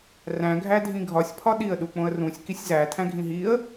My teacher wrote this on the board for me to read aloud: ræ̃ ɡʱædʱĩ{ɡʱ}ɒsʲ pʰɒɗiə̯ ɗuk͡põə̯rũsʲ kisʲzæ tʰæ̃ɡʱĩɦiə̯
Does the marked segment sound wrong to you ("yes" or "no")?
no